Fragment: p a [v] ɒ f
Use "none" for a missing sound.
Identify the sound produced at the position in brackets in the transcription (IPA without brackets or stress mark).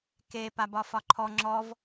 b